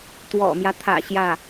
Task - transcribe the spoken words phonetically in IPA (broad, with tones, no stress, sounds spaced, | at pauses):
t̪ w ɔ̰˨˩ m j ä˦ t̪ʰ ä̰˨˩ ɕ j ä˥˩